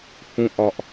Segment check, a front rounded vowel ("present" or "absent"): absent